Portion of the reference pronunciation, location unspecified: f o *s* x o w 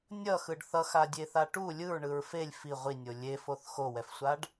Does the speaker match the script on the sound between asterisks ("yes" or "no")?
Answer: no